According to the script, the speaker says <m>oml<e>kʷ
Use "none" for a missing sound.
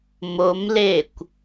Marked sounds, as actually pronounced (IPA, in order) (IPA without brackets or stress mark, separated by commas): m, e